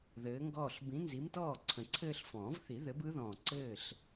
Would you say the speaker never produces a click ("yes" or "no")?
no